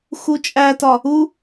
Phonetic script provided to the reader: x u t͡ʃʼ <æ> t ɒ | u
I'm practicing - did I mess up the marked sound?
no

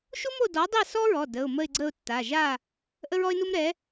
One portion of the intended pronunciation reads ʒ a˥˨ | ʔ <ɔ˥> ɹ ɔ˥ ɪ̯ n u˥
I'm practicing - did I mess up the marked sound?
yes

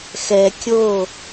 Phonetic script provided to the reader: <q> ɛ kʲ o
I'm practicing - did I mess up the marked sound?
yes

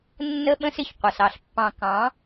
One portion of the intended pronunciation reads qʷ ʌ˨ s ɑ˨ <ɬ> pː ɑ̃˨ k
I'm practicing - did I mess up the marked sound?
no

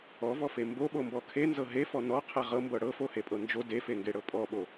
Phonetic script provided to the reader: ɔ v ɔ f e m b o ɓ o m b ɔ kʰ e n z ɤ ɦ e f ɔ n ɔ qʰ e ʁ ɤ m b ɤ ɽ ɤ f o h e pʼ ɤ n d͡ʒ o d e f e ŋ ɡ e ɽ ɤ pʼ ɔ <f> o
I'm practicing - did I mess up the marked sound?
yes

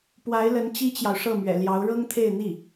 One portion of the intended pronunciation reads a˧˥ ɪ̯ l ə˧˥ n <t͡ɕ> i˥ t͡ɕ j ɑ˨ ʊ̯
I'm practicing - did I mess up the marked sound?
no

